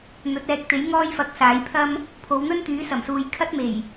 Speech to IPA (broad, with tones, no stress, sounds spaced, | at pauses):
n̪ ɵ˨˥ t̚ ɛː˨˥ k̚ t̪ e˨˥ j ŋ ɔː˥ j f ɐ˨˥ k̚ s aː˨˥ j pʰ ɐ˥ m | pʰ o˨˧ w n̪ ɵ˥ n t̪ yː˨˥ s ɐ˨˩ m s uː˨ j kʰ ɐ˥ t̚ m e˨˩ j